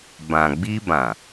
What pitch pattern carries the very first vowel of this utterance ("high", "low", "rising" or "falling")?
low